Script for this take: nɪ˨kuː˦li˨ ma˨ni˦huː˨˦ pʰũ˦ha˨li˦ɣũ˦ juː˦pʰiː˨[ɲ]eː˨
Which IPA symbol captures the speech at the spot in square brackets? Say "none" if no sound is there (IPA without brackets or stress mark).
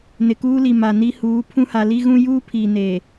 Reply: n